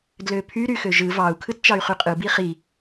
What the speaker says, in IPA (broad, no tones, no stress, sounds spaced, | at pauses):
d l ø pʰ y ɾ y x ø ʒ ɯ v ɑ u̯ kʰ ɯ t t͡ʃ ɑ y̯ χ y qʼ ɯ b i χ i